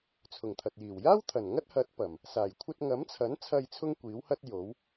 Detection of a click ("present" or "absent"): absent